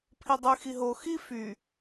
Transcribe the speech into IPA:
pʰ i dˤ y x i ɦ o x i f y

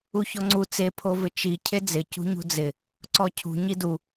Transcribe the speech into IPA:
u ç ɔ ŋ͡ǀ u t͡s e pʰ o v ɪ t͡ʃ i cʰ e d͡z ɪ c ṳ ɲ ṳ d͡z ɪ | ǀ ɔ cʰ ṳ ɲ i d u

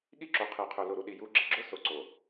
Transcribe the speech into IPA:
ɠ i˦ ǁ o˨ qʰ i˨ qʰ ʊ˨ l o˨ ɾ u˨ ɗ i˨ j u˨˦ ɡ͡ǁ i˨ ɡ͡ǁ ʊ˦ s o˨ ǀ o˨

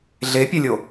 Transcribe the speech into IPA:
ɮ e pʲ ɛ lʲ o

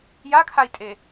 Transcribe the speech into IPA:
j a kʰ a i̯ tʼ e

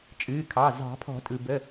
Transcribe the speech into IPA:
t͡ʃʼ ɨː˩˧˩ kʰ ɑ˩˧˩ z ɑ̤˨˩˦ pʰ ɔ̤˨˩˦ tʼ ɯ˩ b ə˩˧˩

